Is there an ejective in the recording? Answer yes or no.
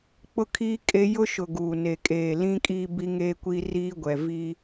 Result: yes